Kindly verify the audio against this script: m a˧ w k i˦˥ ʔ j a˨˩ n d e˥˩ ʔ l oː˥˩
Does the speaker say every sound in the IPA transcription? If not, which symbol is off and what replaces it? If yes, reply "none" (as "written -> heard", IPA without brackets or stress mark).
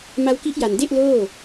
none